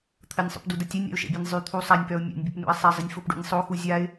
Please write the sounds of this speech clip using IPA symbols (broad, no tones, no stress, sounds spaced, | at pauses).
t̪ʰ ə nʲ sˤ ṵ p d u d ə tʲ ɛ nʲ ɾ ɛ̰ ʊ̯ ʃ ɛ̰ bʲ ɛ nʲ zˤ y t̪ʰ u sˤ a nʲ p œ ʊ̯ mʲ a̰ nʲ bʲ ə p n ṵ ɪ̯ sˤ ɛ zˤ ə nʲ f o p ɖ ṵ nʲ sˤ o x u zʲ a ɪ̯